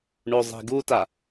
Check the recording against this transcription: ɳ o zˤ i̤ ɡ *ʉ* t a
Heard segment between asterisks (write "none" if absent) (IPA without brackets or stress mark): u